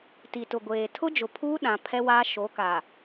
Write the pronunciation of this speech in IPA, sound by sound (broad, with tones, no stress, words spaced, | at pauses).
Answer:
ti˨tʊ˨ɡʷeː˨ tʰʊ˦d͡ʒʊ˨pʰuː˦ ɗã˨pʰɛ˦waː˦ ʃo˨˦kaː˨